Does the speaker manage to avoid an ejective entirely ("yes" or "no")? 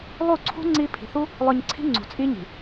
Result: no